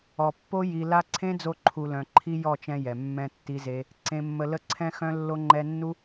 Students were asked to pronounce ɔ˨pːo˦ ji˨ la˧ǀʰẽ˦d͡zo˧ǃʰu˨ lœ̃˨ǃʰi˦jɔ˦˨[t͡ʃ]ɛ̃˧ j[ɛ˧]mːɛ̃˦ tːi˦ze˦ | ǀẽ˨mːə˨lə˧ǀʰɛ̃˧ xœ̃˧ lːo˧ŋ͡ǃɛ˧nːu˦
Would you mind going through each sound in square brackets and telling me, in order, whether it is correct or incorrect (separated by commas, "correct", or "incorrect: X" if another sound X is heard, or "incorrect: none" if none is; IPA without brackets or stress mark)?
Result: correct, incorrect: ɛ˨